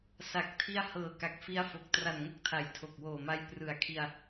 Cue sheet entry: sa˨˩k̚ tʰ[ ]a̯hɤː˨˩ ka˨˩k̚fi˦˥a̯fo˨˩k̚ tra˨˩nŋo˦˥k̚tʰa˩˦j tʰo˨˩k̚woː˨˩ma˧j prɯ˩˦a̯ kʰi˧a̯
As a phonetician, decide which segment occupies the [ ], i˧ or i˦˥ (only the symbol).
i˧